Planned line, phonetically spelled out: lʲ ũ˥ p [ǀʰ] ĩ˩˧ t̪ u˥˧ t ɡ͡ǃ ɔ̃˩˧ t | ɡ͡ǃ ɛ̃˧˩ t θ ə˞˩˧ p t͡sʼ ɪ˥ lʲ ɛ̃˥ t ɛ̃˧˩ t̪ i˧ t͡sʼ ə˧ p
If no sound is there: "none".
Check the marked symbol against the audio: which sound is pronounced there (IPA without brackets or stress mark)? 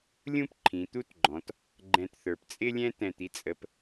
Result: ǃʰ